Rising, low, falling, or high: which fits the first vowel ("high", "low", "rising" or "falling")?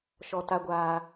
low